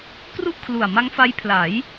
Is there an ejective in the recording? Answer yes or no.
no